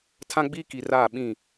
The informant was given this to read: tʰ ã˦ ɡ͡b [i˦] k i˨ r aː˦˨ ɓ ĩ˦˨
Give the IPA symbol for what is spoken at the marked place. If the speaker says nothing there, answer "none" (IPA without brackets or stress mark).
iː˦